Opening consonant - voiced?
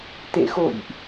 no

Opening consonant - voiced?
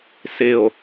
no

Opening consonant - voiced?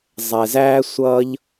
yes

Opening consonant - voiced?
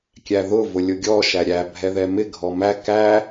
no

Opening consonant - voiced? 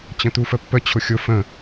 no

